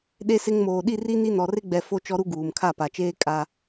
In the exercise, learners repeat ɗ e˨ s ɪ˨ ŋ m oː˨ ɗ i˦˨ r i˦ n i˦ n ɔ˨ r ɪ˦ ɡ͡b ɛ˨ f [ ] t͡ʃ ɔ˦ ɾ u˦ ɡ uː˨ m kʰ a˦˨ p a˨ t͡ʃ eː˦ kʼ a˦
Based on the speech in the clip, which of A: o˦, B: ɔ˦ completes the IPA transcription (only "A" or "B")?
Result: A